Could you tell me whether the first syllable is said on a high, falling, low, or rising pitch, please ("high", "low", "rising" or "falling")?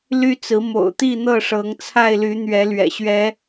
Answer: high